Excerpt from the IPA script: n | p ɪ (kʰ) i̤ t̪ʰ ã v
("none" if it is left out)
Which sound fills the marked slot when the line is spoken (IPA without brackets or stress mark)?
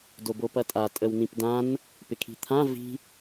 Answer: kʰ